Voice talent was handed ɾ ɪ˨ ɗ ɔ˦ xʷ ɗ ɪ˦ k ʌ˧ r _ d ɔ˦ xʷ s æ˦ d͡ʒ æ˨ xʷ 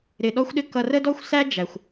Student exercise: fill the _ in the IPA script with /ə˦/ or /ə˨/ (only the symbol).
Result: ə˦